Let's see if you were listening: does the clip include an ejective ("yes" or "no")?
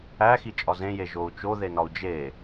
yes